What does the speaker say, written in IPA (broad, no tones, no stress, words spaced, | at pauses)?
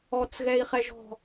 ɔt͡sɣɛi̯χɛʒɔ̤